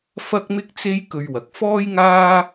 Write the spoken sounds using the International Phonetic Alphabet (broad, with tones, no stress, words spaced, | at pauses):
fɐ˥k̚mɪ˥k̚t͡se˥j kɵ˧ɥwɐ˨k̚ fɔː˥jŋaː˥